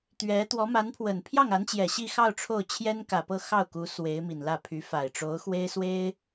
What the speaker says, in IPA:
t̪ɥɛ˧˥ t̪wɔ˧˥ma˧˥npʰwə˨˩n pʰjɑ˥˩ŋa˧˥nt͡ɕjɛ˨˩ ɕi˥˧xɑ˥˧ʊ̯ ʈ͡ʂʰo˥˩ʊ̯t͡ɕʰjɛ˥nkä˨˩pɤ˥˧ xɑ˥˩ʊ̯ku˧˥ swe˧˥ɪ̯mi˨˩nlä˥˩pʰy˧˥ fa˨˩ɪ̯ʈ͡ʂo˧˥ʊ̯xwe˥ɪ̯ swe˥ɪ̯

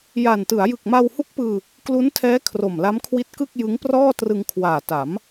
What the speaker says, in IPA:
ja˨˩ntɯ˩˦a̯ jɯ˨˩k̚ma˧whu˦˥k̚pɯː˧ | klu˦˥ntʰɛː˦˥ kʰro˨˩mla˦˥mkʰwi˦˥t̚kɯ˥˩k̚ jɯ˦˥ŋprɔː˥˩trɯ˧ŋkʰwaː˨˩ ta˩˦m

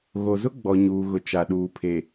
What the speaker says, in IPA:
ɣo˨zʊ˦ɡ͡bɔ˨ ɲuː˨ɣʊ˨ t͡ʃa˨ɗuː˨ pʰe˨

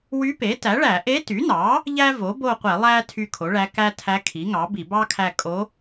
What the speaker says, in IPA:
wy˧˥ pe˩˥ tæ˩˥ɭæ˧˩˧ ʔe˧˥ty˩˥nɑ˩˥ | ʎæ˥vo˩˥bo˦˨qʷe˧˩˧ lˠæ˥ tʰy˦˨kʰo˩˥ɭæ˧˥ kæ˥tʰæ˧˥ kʰi˩˥ŋɑ˩˥bi˧˩˧ bɑ˥kʰæ˦˨ kʼo˧˥

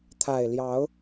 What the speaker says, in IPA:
t̪ʰa˨˩ɪ̯ljɑ˨˦ʊ̯

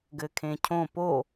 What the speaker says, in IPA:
ɡɘkʰẽcʰõ po

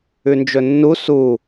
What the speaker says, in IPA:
ʉnd͡ʒɵnːu su

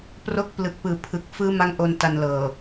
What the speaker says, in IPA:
pro˥˩k̚ plɯ˨˩k̚pɯː˨˩ pʰɯ˨˩k̚fɯː˦˥ma˦˥ŋ ʔo˧nta˧nlɤː˨˩

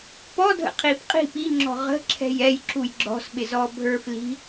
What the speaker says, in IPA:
pɔdʱə̰ qʰipqʼi̤ piŋ͡ǁɔ̤ ʁə̤ ǁʰɛ̤jɛj ǁujɡ͡ǁɔ̤sɓɪzɔ bʱə˞fli̤

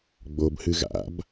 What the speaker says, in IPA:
ɡ͡bobhɨ ɣa̰b

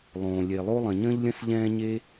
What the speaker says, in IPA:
lˠõː˩lʲe˩lˠo˥ lˠə̃˩ɲə̃ː˥ʎlʲə̃˥s ʎɛ̃ː˥ɲe˥

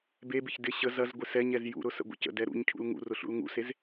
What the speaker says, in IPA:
bebɪç dɪ ɕə zɐzɡʷɪ sɛɲɛz jṵɾʊ sə̰ɡʷə̰cə̰dɛ ɾṵɲcʰṵl ŋṵrʊ ɬṵlŋṵsez

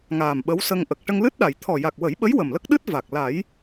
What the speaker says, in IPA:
ŋaː˨˩mɓə˧˥wsə˧ŋʔə˨˩k̚ ʈə˧ŋlɨ˦˥t̚ɗa˨˩˨j t̪ʰɔ˨˩ ja˨˩k̚wə˨˩˦jɓə˧˥j wə˨˩mlə˦˥k̚ɗɨ˦˥t̚ va˨˩k̚ la˨˩˦j

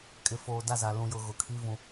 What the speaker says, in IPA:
kʼɪ˨foː˨da˦˨za˨ lũ˨jʊ˨ ɣʊ˨kʰi˦ vũ˦

